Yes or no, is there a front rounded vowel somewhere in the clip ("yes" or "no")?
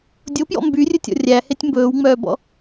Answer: yes